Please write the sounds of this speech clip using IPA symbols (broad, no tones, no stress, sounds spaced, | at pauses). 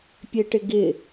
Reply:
pʲ e ʈ ɪ ɡ ɪ